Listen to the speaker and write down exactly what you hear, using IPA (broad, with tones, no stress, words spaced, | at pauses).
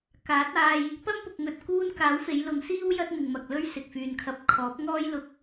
kaː˨˥t̚aː˧j | pɐ˥mpʊ˨k̚ ŋɵ˧t̚kuː˥n kaː˨˥wfe˨˧jlʊ˨˧ŋsiː˥w jɐ˥t̚n̪ɪ˨ŋmɐ˨k̚lɵ˥ɥ sɪ˨k̚fyː˨nkʰɐ˧p̚ kʰɔː˨˥p̚ŋɔː˥j lʊ˧k̚